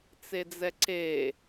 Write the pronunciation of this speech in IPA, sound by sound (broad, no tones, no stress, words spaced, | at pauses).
t͡sed͡zɛǀe